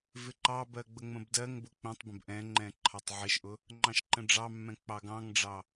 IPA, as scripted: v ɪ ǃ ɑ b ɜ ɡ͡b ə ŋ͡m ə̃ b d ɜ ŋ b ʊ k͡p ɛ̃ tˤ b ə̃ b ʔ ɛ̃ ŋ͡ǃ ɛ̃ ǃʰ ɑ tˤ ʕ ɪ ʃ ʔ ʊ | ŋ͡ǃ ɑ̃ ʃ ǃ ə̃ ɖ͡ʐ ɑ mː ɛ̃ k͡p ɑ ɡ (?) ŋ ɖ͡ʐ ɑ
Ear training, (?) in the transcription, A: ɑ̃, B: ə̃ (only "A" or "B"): A